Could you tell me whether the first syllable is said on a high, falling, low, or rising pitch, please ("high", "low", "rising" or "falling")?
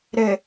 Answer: low